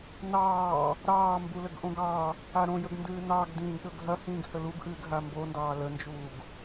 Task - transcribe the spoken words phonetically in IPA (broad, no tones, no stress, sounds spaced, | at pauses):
n ɑː | ɾ ɑː m b u l ə ɡ ʔ õ ɡ ɑ | a ɾ õ j ə ɡ n d ɨː n ɑ ɡ d ĩː ɡ ɗ ɵ ɡ ɦ ɐ h ĩː ɡ h ə l u ɡ ʔ ɨː ɡ ɦ a m b o n d ɑː l ə n d͡ʒ uː ɡ